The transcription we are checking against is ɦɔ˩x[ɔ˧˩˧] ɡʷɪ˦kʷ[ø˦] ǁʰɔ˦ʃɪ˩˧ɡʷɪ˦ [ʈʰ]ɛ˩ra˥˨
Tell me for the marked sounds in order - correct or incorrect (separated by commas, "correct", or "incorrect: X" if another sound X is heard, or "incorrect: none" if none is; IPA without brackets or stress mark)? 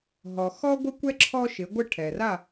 incorrect: ɔ˦, incorrect: ɛ˦, correct